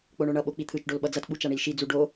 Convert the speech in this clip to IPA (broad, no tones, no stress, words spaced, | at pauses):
k͡poɳoɳʌ ɓok͡pit̪ʰɯt͡ʃ ɖolɓʌd͡zʌt ɓut͡ʃaɳilʃi d͡zuɖo